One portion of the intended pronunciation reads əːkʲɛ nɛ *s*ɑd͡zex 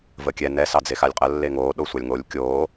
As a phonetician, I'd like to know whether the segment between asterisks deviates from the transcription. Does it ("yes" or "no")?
no